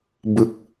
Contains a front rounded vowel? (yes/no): no